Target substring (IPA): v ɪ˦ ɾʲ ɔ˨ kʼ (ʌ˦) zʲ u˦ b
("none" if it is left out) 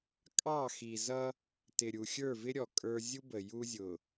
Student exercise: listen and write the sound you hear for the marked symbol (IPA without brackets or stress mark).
ə˞˦